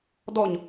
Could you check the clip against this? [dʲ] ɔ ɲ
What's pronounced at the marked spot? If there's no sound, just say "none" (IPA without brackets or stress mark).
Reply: d